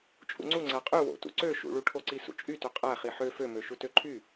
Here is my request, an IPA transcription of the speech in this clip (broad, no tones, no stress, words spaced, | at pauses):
t͡ʃʼṵŋ͡ǀu ŋ͡ǀæqʼy wo̰tṵ ǀø ʃṵɭuʈʰoǀi sṵt͡ʃʼytø qʼæχi ħø fømø ʃutøǃʰy